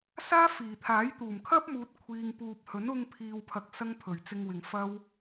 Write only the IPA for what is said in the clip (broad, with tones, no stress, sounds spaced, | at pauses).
s aː˥ f iː˨˩ t̪ʰ aː˨˥ j t̪ uː˨˩ m kʰ ɐ˥ p̚ m uː˨ t̚ kʷʰ iː˨ ŋ p uː˨ p̚ h ɵ˨˥ n ʊ˧ ŋ pʰ iː˨ w pʰ ɐ˧ k̚ s ɐ˥ ŋ pʰ ɵ˨˩ ɥ t͡s ɪ˧ ŋ w ɪ˨ ŋ f ɐ˥ w